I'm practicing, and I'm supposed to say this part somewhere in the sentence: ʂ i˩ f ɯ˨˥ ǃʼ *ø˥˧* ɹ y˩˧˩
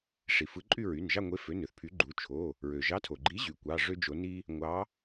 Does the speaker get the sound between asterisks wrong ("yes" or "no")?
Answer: yes